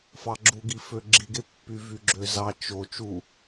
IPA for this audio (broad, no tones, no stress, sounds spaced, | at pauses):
f ɑ ɡ͡ǁ u ɡ i f ø ɡ͡ǁ i ɡ e pː y v y ɡ͡ǁ ø z ɑ t͡ʃ o t͡ʃ u